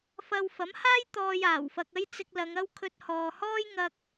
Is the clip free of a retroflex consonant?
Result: yes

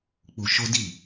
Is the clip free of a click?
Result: yes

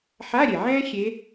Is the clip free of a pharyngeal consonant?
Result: no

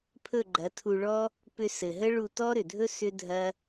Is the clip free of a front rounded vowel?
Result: no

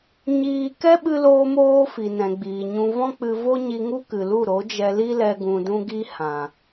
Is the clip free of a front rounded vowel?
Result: yes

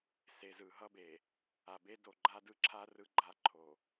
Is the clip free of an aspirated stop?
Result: no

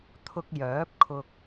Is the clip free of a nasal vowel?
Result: yes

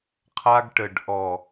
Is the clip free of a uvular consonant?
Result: no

